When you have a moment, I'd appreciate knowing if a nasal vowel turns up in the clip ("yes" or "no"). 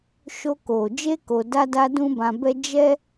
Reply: yes